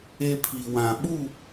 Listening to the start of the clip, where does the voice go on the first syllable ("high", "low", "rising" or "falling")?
high